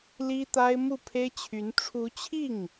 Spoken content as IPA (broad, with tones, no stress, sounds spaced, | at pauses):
l i˥ t̪ a˥ ɪ̯ m u˥˩ pʰ e˥ ɪ̯ t͡ɕʰ y˧˥ n ʈ͡ʂʰ u˧˥ t͡ɕʰ i˥˩ ŋ